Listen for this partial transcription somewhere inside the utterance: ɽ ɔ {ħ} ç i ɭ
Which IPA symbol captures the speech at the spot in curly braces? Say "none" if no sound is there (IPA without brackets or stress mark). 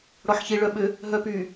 ħ